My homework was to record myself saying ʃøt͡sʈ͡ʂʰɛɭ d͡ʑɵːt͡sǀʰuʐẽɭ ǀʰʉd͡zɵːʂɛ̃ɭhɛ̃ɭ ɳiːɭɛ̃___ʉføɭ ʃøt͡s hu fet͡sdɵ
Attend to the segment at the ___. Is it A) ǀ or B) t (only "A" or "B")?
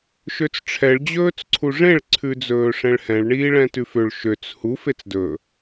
B